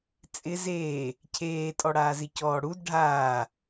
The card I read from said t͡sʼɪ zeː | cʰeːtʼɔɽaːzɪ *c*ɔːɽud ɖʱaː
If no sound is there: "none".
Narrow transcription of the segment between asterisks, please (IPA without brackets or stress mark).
c